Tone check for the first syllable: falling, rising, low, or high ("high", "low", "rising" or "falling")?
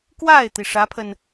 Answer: falling